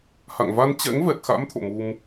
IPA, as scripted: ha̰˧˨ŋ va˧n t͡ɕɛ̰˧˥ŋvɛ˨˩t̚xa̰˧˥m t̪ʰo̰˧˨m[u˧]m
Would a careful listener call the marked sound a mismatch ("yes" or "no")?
no